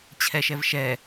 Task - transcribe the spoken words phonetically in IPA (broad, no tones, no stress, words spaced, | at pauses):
t͡ɕʰɛʃɛvʃɛ